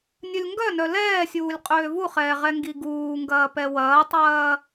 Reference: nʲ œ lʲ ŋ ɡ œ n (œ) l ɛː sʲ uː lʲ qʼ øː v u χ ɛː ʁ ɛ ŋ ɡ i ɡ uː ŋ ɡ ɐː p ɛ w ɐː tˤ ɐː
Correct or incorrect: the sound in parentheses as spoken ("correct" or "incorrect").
correct